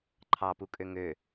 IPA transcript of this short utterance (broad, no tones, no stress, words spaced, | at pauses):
ǃʰɑpukʼø ŋø